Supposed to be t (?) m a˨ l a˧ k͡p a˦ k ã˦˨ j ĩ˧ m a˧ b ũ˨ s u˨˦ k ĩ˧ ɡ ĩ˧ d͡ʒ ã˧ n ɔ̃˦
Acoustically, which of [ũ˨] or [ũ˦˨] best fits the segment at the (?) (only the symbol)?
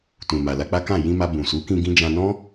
ũ˨